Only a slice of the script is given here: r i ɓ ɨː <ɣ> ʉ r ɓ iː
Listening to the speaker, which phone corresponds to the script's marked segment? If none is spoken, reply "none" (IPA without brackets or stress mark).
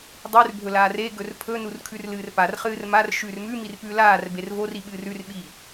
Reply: r